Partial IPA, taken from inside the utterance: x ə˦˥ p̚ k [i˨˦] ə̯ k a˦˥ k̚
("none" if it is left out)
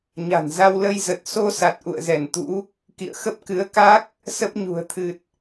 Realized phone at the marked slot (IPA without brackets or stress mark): ɨ˨˦